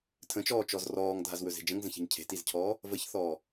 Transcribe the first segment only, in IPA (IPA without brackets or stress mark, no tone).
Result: tʰ